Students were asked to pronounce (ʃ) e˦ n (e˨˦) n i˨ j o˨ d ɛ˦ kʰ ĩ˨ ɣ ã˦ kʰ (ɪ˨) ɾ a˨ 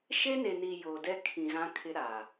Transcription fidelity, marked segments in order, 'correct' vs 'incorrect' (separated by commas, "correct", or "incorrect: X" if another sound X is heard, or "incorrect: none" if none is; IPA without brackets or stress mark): correct, incorrect: e˨, incorrect: ɪ˦